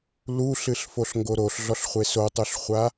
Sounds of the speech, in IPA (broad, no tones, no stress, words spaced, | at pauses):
luɬɨɬfoɬŋɡo ɾoɬɮɔɬχʷe sotˤuɬχʷa